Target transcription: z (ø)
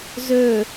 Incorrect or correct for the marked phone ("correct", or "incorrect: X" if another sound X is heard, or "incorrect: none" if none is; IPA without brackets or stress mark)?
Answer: incorrect: ɵ